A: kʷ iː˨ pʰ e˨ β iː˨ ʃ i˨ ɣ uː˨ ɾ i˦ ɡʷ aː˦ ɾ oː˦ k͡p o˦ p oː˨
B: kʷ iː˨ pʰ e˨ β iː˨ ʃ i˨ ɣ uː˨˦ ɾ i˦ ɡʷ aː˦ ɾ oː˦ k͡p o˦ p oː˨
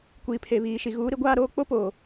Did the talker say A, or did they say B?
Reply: B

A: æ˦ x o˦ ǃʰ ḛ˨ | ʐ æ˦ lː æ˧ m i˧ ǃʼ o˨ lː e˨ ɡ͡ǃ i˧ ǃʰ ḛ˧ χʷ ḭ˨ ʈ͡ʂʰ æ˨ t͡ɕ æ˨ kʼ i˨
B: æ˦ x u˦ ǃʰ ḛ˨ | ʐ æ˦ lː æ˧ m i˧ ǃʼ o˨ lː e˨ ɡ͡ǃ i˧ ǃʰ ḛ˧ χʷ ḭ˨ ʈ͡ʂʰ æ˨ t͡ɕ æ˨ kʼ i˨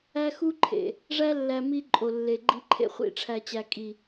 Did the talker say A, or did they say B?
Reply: B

